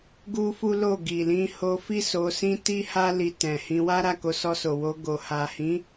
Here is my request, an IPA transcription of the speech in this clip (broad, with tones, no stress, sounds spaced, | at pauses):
ɡ u˦ f u˦ l o˦˨ ɡ i˨ l ĩ˧ h o˧ f i˦ s o˧ s ĩ˦ t i˦ h a˦ l i˧ t ɛ̃˨ h ĩ˧ w a˦ ɾ a˦˨ k o˧ s ɔ˧ s o˨ w o˧ ɡ o˨ h a˨ h ĩ˨˦